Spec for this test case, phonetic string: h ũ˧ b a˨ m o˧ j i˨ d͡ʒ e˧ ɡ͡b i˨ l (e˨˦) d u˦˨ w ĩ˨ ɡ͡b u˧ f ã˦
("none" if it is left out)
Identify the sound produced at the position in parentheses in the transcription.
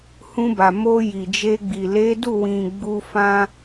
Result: e˨˦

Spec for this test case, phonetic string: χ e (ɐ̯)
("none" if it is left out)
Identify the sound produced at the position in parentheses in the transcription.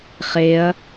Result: ɐ̯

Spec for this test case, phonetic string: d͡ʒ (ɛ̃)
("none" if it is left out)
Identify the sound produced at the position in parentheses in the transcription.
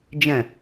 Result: ɛ̃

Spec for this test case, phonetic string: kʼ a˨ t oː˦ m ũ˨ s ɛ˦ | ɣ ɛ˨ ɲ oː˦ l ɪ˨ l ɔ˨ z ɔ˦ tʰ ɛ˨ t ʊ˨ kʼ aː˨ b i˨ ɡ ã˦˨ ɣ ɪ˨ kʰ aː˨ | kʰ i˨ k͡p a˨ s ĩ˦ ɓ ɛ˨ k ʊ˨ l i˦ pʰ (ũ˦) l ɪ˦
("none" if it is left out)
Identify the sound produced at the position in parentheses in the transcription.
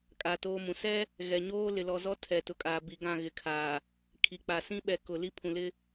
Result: ũ˨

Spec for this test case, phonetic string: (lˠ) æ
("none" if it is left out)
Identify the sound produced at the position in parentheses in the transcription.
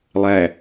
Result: lˠ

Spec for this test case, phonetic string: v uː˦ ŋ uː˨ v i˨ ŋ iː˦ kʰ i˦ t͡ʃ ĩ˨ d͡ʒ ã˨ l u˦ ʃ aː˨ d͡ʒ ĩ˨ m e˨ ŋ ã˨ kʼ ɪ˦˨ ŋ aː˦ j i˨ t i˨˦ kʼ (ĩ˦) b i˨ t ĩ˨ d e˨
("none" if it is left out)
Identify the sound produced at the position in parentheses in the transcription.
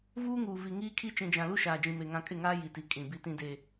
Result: ĩ˨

